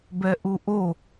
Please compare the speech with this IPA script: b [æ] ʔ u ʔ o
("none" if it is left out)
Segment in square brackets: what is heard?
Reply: ɛ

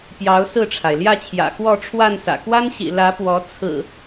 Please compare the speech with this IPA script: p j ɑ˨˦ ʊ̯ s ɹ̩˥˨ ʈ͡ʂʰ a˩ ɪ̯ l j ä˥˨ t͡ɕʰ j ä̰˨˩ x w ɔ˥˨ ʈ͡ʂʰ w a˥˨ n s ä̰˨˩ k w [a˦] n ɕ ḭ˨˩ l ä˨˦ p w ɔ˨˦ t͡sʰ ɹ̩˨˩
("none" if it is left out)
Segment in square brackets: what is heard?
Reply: a˦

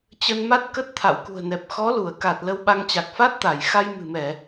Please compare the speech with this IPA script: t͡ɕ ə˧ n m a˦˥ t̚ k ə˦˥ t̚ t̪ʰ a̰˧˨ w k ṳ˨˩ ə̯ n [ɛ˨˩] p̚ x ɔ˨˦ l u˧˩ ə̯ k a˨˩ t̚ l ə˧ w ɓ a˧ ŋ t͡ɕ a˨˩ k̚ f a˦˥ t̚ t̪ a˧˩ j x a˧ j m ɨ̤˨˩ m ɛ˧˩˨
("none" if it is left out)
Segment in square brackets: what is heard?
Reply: ɛ˨˩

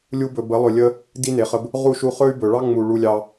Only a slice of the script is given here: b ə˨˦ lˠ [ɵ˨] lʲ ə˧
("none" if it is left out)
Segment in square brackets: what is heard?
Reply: ɵ˨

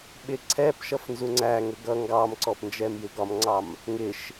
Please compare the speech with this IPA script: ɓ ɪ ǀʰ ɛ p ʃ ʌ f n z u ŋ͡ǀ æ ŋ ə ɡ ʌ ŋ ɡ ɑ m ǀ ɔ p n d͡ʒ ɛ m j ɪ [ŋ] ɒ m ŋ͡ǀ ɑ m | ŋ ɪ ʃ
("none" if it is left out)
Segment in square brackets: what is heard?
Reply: ɡ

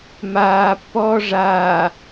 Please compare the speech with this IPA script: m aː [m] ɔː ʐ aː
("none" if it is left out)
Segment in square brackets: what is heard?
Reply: pː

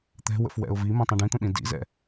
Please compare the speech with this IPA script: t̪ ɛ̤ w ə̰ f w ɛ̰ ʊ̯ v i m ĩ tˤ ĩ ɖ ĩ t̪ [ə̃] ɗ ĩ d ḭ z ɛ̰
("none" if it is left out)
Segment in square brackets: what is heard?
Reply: ə̃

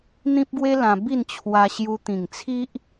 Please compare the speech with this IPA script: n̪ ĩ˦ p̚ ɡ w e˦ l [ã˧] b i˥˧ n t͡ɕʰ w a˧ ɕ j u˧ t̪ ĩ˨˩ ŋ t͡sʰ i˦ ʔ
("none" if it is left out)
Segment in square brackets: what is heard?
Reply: ã˧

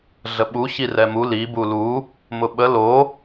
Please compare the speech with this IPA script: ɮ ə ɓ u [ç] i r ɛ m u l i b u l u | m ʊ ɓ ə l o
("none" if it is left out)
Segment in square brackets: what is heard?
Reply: ç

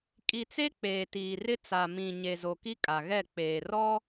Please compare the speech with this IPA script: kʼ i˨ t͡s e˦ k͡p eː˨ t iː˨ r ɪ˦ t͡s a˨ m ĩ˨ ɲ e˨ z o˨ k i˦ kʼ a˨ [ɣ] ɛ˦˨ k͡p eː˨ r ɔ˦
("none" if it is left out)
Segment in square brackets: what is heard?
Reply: ɣ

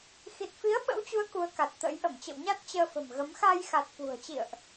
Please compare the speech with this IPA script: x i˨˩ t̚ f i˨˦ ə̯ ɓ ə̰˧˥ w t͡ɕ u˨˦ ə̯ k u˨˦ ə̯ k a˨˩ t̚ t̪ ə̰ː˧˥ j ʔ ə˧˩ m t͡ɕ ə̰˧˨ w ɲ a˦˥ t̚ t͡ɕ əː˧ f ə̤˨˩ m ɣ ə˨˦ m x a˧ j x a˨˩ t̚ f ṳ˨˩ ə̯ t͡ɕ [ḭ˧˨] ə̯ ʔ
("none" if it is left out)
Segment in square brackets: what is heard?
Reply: ḭ˧˨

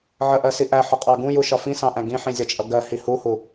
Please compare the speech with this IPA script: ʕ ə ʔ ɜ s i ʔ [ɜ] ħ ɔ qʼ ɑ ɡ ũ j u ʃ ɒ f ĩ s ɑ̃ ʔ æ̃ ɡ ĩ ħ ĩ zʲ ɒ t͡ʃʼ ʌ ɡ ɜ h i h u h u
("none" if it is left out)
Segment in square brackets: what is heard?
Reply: æ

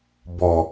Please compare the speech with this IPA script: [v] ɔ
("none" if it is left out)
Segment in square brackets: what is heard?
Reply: b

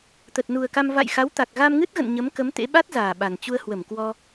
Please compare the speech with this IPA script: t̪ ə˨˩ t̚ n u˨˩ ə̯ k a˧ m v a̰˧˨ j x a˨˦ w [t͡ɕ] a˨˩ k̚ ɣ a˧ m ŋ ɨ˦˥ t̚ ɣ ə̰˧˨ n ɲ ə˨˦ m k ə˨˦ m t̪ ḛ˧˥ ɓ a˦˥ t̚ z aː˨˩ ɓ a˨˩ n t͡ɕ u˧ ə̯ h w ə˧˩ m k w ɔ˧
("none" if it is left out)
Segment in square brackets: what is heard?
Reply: t̪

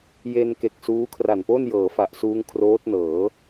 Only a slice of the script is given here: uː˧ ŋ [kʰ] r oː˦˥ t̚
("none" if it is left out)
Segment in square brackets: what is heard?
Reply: kʰ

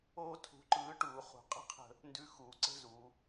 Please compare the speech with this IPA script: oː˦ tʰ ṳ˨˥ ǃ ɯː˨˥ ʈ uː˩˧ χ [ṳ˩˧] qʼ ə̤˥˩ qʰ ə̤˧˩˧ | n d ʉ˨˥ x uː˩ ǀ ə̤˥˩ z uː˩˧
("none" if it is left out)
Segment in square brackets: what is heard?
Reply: ṳ˩˧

